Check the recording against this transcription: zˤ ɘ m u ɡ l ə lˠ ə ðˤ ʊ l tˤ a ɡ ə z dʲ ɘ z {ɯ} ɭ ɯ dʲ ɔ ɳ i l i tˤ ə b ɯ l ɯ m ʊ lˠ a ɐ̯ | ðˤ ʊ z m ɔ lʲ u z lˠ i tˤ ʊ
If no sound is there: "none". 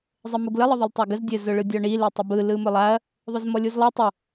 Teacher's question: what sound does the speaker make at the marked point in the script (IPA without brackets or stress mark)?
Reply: ʊ